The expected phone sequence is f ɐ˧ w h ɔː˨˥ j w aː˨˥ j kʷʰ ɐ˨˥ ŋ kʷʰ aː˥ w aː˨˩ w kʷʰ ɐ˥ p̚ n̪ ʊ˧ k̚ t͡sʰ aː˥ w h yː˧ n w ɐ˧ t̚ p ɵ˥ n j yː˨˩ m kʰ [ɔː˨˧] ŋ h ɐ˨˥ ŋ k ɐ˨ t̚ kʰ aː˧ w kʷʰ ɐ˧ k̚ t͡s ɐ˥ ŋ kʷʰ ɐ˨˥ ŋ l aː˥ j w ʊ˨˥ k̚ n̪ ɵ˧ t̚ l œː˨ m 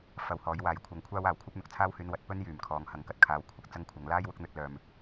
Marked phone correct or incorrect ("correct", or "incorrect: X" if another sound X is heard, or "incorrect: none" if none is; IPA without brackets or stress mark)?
incorrect: ɔː˨